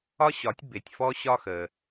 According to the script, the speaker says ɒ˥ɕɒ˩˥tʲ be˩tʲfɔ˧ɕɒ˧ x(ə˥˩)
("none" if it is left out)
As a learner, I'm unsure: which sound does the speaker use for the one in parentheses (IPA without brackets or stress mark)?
ə˩